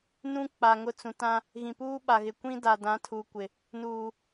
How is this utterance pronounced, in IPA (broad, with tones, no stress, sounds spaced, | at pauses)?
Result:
n ũ˦ k͡p a˨ ŋ ʊ˦˨ t͡s ũ˨ t ã˦ | ɣ ĩ˨ p uː˦ ɓ a˨ ɣ ɪ˨ kʷ ĩ˦ d a˨ d ã˨˦ tʰ uː˨ kʷ ɪ˨ | n uː˨